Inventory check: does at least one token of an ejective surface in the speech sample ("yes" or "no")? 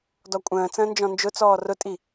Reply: yes